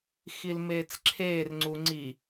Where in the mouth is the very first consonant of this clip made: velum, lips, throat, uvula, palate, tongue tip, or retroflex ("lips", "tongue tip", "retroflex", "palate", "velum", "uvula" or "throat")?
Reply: velum